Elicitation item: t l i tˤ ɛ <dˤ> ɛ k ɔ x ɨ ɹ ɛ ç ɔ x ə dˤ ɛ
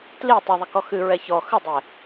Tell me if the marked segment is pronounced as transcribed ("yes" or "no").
no